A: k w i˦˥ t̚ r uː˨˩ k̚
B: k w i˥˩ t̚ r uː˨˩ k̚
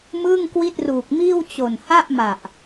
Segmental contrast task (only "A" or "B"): B